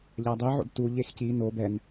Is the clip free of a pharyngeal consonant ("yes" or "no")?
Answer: no